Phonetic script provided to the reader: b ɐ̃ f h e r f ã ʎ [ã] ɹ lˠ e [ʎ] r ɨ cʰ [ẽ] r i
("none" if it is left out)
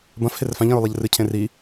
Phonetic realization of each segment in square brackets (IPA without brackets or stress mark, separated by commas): ɐ̃, ʎ, ẽ